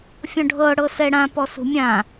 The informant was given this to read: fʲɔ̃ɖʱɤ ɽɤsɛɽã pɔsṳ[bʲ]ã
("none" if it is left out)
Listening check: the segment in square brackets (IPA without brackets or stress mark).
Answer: mʲ